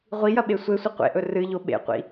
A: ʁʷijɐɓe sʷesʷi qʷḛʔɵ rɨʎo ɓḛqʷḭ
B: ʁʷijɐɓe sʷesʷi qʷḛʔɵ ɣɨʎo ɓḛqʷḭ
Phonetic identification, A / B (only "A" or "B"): A